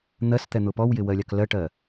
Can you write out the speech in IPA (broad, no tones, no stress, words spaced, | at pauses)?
n̪ɜst̪ɛn̪ʊ pɔwjɪwɜlʲɑk lɜʈɜ